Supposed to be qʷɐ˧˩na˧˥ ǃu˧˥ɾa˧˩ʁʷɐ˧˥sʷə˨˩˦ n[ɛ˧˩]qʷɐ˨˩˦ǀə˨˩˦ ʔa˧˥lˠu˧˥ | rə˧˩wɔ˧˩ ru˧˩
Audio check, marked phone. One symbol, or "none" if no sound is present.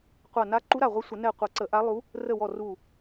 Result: ɛ˧˩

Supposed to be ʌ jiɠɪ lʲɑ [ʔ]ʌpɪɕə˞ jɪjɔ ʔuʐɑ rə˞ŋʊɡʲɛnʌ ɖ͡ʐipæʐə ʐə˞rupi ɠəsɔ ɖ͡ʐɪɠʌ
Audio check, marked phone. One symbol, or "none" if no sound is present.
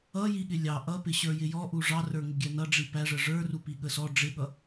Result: ʔ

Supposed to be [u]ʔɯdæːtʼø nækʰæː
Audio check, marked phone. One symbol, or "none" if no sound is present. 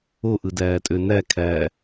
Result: o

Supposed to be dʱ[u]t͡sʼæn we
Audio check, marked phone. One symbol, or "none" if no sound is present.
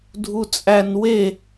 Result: u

